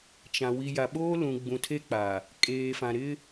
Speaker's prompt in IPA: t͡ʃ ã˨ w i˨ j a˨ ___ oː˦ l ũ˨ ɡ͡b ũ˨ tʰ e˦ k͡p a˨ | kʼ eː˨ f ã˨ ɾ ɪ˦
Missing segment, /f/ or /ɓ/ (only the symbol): ɓ